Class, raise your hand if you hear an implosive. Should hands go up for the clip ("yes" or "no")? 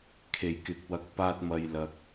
no